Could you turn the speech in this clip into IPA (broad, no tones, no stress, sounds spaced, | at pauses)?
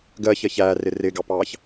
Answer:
ɡ ɜ ç ɜ ç æː r ɪ r ɪː ɡ ɑ p ɑː ç